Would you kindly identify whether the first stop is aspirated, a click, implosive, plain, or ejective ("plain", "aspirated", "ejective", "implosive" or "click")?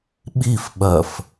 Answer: implosive